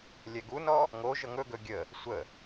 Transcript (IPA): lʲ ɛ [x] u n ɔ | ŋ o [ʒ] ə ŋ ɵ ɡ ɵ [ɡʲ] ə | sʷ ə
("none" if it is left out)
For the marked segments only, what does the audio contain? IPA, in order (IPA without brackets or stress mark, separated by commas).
ɡ, ʒ, ɡʲ